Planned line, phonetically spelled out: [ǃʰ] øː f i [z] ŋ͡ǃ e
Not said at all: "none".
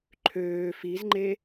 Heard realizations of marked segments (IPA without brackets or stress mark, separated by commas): ǃʰ, z